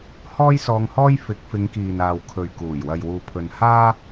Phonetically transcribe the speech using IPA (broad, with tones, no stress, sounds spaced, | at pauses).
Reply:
h ɔː˥ j s ɔː˧ ŋ h ɔː˥ j f ɪ˨˥ k̚ f ɪ˨˧ ŋ k iː˨ n aː˨ w kʰ ɵ˨ ɥ k uː˨˩ j w ɐ˨ j w uː˨ pʰ ɵ˨ n h aː˥